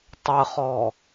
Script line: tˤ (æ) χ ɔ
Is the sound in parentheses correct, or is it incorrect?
incorrect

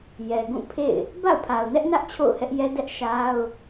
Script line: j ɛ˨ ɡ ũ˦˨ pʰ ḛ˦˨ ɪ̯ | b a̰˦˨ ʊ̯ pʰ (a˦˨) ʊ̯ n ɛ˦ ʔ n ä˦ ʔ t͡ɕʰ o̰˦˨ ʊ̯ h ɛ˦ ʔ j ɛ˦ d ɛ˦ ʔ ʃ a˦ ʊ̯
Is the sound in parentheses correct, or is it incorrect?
incorrect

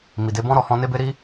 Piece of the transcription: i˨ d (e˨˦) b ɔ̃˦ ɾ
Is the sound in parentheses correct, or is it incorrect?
correct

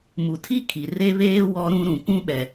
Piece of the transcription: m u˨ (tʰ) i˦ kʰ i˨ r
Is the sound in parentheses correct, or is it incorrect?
correct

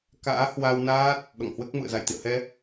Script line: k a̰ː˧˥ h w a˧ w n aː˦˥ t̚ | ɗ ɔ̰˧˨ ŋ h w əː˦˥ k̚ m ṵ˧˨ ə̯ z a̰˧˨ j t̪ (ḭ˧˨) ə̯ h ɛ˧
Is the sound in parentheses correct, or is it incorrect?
correct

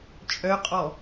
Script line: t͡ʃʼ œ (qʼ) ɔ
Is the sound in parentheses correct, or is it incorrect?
correct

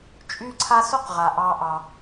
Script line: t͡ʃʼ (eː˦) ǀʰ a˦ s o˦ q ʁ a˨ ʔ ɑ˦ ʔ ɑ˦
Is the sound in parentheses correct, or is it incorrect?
incorrect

